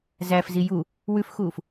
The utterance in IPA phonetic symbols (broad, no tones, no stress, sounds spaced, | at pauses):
z æ f z i j u | w ʉ f x uː f